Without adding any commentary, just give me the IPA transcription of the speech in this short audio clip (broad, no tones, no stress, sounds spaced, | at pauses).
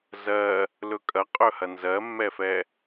z ɜ | l ɵ kʼ ɐ qʼ ɵ h ɐ n z ɜ mː ɛ f ɛ